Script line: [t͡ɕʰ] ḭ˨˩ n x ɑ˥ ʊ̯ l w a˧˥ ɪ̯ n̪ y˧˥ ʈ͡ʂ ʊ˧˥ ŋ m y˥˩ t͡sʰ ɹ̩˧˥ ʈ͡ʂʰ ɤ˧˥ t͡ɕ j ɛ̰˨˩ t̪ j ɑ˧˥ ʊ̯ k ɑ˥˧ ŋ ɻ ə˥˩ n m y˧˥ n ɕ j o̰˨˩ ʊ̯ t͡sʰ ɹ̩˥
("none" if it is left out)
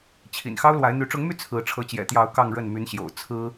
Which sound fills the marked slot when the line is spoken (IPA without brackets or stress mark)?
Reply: t͡ɕʰ